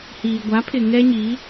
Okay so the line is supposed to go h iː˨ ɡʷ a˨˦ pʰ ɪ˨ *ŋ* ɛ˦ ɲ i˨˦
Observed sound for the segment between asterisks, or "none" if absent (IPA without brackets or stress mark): ŋ